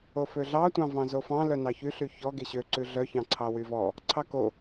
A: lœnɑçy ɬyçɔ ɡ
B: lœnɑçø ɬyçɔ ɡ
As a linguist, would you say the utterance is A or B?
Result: A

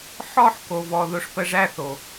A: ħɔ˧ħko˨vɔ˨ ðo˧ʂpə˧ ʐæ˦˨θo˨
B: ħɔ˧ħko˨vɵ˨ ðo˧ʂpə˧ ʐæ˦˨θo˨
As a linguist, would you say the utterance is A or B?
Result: A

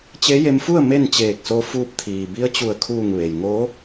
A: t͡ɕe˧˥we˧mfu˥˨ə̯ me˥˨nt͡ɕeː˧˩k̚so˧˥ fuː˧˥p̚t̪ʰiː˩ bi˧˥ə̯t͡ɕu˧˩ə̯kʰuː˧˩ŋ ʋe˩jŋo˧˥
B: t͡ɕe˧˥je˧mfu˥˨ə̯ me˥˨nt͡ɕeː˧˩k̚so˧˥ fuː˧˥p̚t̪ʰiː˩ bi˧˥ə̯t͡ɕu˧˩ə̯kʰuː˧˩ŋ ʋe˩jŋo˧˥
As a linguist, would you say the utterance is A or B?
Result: B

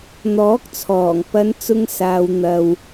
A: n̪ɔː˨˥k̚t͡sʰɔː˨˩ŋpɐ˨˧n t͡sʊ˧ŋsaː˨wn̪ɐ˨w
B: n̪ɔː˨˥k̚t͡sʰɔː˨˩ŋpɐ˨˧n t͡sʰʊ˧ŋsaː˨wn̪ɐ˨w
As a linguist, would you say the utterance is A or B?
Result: A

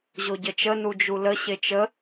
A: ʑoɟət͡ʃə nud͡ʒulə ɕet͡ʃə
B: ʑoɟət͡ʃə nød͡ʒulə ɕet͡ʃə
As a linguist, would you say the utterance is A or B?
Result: A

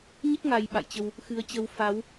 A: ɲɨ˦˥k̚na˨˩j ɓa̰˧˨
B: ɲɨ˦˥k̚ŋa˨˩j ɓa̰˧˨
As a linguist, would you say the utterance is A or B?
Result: B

